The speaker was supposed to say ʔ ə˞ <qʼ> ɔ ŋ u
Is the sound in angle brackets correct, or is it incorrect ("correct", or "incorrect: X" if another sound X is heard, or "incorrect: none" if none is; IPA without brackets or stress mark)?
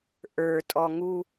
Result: incorrect: tʼ